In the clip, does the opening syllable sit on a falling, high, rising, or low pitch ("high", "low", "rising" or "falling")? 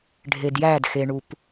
low